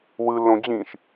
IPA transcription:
wɯ lːõd͡ʑĩʃ

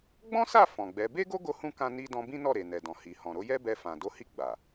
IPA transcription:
ɡ͡bɔ̃˦sa˦˨ fɔ̃˨ɡ͡bɛ˨˦ be˦ɡo˦ɡo˧hũ˧ kã˧ni˧ dɔ̃˧bĩ˦nɔ˦˨ɾe˨ nɛ˨dɔ̃˨ hi˨ hɔ̃˨ɾo˨˦ jɛ˦ bɛ˧fã˨do˧ hi˧ ɡ͡ba˨

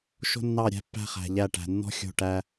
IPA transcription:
ʃo̤˦nːɑ˦˨ɾʲæ̤˦pːæ̤˦ χæ̤˨ʎæ˦˨ʈæ̤˨ nːɔ̤˦ xʲo̤˦˨ʈæ˦

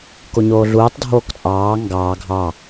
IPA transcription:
koɲoːɮuːtˤ dʱoːkt͡sʼɑː ŋɡɑː ɡʱɑ

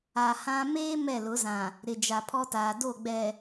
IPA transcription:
a˨ hã˦ meː˦ mɛ˦˨lʊ˨˦zã˨ | ɾɪ˨d͡ʒa˨pʰɔ˦taː˨ do˦˨ɡ͡bɛ˨

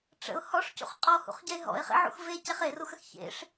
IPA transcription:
ʈ͡ʂə̰ʊ̯ hɔʂcṵχ qʼɔhṵχɟɛɪ̯ ɦɔ̰ɪ̯χḛʕṵx vecɛχ eruxəx çḛʂ

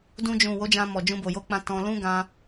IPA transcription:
dũ˧d͡ʒũ˨ wo˨˦d͡ʒã˧mɔ˨d͡ʒũ˧ bo˨ jo˨˦k͡pã˧ tɔ̃˧lũ˦ ɡã˧

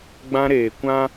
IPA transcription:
ɡ͡bã˦ɾeː˨kʷã˦

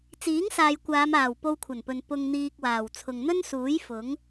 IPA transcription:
t͡siː˨˥ŋsaː˨jkʷaː˨˧maː˨˩w po˧wkʷʰɐ˨˩npɵ˨n pʊ˧ŋn̪iː˧k̚waː˨˩w t͡sʰʊ˨ŋn̪ɵ˥n suː˨˥j fʊ˨˥ŋ

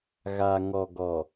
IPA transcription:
ɣa˨ ŋɔ˨ɡɔ˨

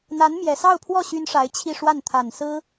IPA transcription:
n̪a˧˥n mjɛ˨˩sɑ˥˧ʊ̯pʰwɔ˥˩ ɕy˥nʂa˧˥ɪ̯t͡ɕʰi˥˧ʂwa˥˩n t̪ʰa˨˩nsɹ̩˥

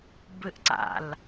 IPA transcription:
bɨʔǀa̰l

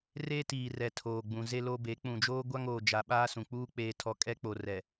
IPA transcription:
re˦tiː˨ rɛ˨tʰoː˨ɡ͡bũ˨ze˦ lo˦be˨˦ k͡pũ˨d͡ʒoː˦ɡʷa˦ŋ oː˨d͡ʒa˨ ɓaː˦sũ˨k͡puː˦ k͡peː˦tʰɔ˦ kʼɛ˦k͡po˨rɛ˨

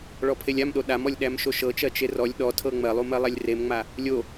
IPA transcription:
ɭɔpʰelʲamɗo ɗamɔlʲɗæm ʃoʃɤt͡ʃɜ t͡ʃerɔlʲ ɗɔtʰɤ ŋ͡mɜlˠumɜlˠɛlʲ remŋ͡ma | lʲo

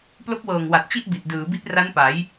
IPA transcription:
plo˦˥k̚wɤː˨˩ŋwa˨˩t̚ t͡ɕi˥˩ʔbi˨˩t̚ dɯː˩˦ bi˦˥t̚ra˦˥npa˩˦j

